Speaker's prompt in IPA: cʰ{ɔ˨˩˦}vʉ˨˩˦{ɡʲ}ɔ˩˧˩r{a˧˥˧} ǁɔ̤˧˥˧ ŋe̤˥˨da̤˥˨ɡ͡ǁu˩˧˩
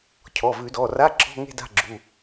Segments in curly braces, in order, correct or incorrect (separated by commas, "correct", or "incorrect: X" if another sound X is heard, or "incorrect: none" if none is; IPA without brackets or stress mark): incorrect: ɔ˩˧˩, incorrect: d, correct